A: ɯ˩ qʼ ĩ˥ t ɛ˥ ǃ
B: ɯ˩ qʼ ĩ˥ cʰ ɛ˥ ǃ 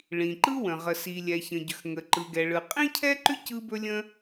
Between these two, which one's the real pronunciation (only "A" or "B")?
B